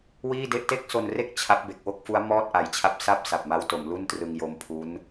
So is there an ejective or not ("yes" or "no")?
no